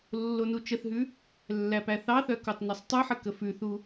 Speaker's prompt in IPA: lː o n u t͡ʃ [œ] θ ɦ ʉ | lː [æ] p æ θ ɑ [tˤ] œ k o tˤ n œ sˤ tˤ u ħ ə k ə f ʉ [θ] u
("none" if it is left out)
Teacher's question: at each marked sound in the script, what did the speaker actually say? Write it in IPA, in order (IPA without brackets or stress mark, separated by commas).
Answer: ə, æ, θ, θ